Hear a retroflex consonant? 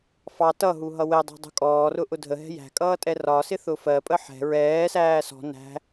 no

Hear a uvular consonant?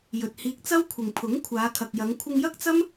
no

